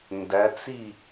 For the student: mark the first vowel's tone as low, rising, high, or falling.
rising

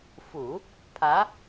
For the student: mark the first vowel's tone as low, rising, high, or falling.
low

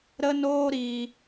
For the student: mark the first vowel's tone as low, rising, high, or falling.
high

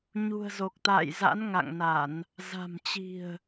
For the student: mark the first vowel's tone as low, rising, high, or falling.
low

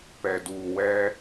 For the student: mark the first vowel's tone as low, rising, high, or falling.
low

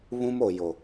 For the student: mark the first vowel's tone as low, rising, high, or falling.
high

